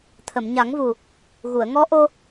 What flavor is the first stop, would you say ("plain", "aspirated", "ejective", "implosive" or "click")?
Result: aspirated